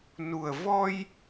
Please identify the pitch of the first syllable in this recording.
low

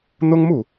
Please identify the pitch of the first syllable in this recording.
high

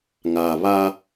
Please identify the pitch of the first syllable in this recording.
low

